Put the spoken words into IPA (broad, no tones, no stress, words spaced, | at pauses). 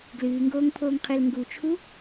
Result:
ɡlɨːŋɡoːŋpʰoːŋqʰel ŋɡut͡ʃʰu